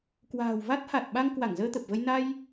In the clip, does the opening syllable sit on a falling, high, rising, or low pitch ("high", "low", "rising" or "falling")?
low